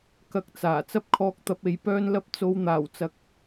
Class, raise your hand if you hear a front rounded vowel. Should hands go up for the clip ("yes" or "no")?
yes